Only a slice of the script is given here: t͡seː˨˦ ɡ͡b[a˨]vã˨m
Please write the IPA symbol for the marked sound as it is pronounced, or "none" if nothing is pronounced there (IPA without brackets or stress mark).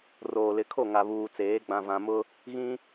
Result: ã˨